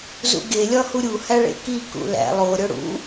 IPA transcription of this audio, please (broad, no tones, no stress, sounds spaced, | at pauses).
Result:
z ṵ ɡ e lʲ ɒ h u ɾʲ u h æ ɭ ḛ k i k ṵ l æ̰ lˠ o ɾʲ o ɽ ṵ